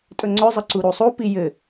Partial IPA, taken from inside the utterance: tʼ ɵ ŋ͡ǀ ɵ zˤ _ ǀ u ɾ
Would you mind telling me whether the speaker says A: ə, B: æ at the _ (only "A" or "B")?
A